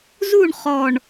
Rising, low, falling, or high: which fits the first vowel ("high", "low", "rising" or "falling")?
falling